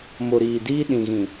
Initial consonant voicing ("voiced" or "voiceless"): voiced